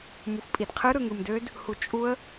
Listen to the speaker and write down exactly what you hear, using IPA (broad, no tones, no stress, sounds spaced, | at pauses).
m u f pʼ i d qʰ ɯ ɾ ɯ ŋ ɯ m d ø d | h u t͡ʃʼ u ə̯